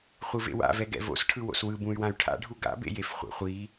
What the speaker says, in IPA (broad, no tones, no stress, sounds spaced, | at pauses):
χʷ ɯ v ḛ w a̰ v ɛ ɡ ɛ̰ v o̰ s ʈʰ ɯ w o̰ s w ɯ b ũ y̯ w ã y̯ ʈʰ a̰ ɖʱ u ɡ a̰ b ḛ j e f χʷ ɛ̰ χʷ i